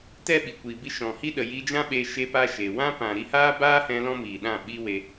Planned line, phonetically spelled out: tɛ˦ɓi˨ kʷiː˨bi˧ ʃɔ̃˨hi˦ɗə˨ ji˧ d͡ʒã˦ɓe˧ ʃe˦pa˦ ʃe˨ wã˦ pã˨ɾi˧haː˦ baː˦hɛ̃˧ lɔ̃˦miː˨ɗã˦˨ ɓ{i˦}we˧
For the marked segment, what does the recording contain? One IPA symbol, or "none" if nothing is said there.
i˦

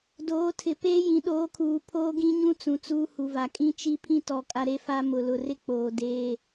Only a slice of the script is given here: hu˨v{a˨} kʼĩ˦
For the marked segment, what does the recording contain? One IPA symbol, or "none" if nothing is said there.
a˨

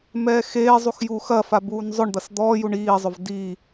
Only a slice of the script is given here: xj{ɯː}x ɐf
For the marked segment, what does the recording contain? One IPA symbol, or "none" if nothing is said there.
uː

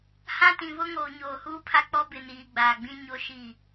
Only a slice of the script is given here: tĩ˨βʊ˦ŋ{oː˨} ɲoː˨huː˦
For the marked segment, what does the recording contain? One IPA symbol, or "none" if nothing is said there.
oː˨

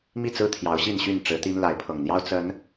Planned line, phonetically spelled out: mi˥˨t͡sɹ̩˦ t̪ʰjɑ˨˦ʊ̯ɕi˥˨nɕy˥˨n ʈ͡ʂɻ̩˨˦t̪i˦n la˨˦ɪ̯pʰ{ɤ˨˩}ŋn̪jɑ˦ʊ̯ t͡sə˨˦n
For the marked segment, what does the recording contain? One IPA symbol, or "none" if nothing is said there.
ɤ˨˩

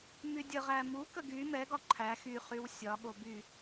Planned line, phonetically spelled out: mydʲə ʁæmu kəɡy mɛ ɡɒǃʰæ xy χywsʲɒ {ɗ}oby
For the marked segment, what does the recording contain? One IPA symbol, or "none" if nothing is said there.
ɠ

